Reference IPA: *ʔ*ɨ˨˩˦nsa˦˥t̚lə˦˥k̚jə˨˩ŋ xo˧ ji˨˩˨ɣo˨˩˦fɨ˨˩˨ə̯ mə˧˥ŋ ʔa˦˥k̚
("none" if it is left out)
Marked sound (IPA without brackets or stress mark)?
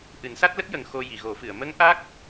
ʔ